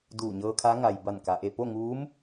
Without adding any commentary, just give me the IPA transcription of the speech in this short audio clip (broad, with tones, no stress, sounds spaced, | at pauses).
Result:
d uː˧˩ ɲ ɤː˧ kʰ a˧˥ ŋ a˩ j b a˧˩ n k a˩ ʔ e˧˩ p o˥˨ ŋ uː˧˥ m